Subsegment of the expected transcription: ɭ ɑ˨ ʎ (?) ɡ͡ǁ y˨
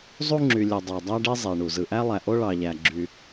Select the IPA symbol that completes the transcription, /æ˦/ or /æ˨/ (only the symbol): æ˨